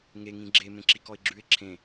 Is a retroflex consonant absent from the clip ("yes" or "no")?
yes